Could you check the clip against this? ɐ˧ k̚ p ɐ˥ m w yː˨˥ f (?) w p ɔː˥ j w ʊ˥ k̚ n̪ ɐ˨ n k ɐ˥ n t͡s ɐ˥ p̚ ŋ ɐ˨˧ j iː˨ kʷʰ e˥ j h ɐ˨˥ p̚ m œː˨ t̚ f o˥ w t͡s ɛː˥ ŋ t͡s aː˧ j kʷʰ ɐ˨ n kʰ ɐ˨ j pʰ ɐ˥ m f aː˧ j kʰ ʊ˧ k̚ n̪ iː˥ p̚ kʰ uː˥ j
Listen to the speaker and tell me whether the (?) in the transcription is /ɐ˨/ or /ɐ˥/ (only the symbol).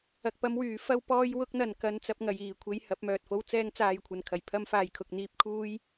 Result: ɐ˥